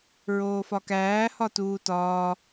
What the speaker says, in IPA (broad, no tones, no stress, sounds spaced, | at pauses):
ɹ oː f ɒ k æː h ɒ t uː t ɒː